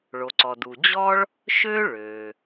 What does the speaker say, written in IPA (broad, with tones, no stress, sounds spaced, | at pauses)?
ɭ o˩ ǀ ɔ˩ d u˩ d͡ʑ ɔ˥ ɭ | ʃ ø˥ ɭ ø˩